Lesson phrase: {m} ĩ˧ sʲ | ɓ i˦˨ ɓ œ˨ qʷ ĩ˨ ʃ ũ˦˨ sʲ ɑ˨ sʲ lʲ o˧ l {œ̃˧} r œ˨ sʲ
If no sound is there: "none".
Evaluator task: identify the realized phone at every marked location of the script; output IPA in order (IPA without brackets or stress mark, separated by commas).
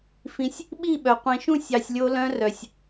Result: f, œ̃˧